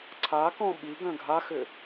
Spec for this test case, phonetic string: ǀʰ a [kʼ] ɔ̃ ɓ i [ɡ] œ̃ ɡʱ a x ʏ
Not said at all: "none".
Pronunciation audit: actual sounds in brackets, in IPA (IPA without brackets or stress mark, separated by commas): k, ɡ